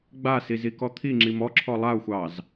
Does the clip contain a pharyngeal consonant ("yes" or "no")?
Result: no